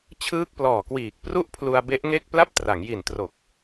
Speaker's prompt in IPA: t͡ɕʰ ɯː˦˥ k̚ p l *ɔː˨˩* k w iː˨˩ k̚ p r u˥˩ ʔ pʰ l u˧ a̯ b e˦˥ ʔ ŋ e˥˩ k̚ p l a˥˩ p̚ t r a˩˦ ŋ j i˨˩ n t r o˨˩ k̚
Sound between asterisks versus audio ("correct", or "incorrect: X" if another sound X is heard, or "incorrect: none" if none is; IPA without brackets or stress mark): correct